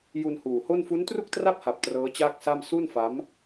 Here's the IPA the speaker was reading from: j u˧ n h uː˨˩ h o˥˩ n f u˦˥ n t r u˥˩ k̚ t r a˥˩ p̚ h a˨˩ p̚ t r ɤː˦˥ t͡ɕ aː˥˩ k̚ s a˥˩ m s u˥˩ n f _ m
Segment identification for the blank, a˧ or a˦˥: a˦˥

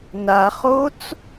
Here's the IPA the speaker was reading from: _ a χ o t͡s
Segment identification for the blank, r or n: n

